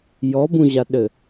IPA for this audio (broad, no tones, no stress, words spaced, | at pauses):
jɔbũʑaɗɘ